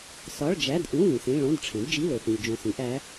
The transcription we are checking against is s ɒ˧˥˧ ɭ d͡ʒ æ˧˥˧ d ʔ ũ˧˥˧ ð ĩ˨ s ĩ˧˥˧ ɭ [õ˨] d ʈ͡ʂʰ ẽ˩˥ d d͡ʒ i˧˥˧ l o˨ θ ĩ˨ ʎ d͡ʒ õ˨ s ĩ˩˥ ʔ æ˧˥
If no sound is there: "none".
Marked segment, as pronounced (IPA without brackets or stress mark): õ˧˥˧